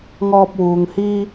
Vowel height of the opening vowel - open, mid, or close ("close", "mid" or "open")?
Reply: mid